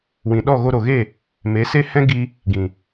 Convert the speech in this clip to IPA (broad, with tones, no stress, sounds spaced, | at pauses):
w ĩ˨ ɗ ɔ˦˨ ɣ o˧ ɾ o˨ ɣ e˦˨ | m e˨˦ s e˦ h ɛ̃˦ ɡ i˧ | ɡ ĩ˨